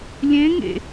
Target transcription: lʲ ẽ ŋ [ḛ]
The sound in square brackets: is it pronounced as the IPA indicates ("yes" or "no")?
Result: yes